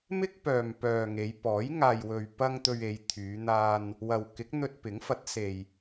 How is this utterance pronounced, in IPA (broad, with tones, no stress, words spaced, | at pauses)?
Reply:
mɪ˥k̚ pœː˨mpœː˨ ŋe˨˧jpɔː˨˥j ŋaː˨jwɵ˨ɥpɐ˧ŋ t̪ɵ˧ɥe˨˧jt̪ʰyː˨˧n̪aː˧n | wɐ˨wkɪ˨˥k̚ n̪ɵ˧t̚pɪ˨˥ŋfɐ˨˥t̚se˨j